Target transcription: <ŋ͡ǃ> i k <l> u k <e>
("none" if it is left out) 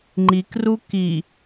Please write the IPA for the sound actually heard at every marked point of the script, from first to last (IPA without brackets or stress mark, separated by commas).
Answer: ŋ͡ǃ, r, i